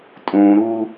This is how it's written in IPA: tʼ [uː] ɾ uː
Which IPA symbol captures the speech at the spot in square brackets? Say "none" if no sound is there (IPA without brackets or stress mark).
ũː